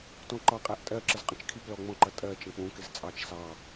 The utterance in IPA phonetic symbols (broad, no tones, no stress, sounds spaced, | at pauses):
t ɔ̃ ǃ ɑ qʼ æ ʔ tʼ ɜ ǁ ə z qʼ ə̃ t͡ʃ kʰ i p l ɔ ŋ͡m ɔ̃ ǃ ʌ tʼ ɜ t͡ʃ ə̃ k͡p ũ k ɪ z t͡sʼ ɑ t͡ʃ s ɑ